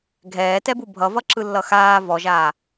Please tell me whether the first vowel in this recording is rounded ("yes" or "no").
no